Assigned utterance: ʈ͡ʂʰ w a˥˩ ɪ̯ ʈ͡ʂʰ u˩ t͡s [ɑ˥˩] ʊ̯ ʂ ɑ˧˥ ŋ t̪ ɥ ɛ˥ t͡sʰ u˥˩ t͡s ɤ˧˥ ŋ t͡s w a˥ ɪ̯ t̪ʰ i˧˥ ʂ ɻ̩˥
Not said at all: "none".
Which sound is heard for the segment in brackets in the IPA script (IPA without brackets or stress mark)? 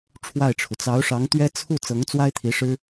ɑ˧˥